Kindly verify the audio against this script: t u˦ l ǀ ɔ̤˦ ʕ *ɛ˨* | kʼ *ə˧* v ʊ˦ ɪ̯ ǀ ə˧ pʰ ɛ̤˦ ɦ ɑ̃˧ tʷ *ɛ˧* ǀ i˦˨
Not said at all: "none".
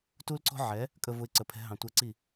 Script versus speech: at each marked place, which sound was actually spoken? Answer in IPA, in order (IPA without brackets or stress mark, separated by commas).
ɛ˨˦, ə˧, ɛ˧